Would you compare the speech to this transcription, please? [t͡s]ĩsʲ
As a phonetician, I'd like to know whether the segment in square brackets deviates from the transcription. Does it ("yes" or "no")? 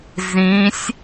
yes